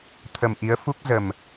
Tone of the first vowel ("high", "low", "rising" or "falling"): low